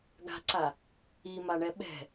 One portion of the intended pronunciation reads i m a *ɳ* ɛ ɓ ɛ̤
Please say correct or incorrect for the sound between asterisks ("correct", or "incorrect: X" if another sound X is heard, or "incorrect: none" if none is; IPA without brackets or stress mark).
correct